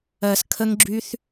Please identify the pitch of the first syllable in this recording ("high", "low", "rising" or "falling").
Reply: low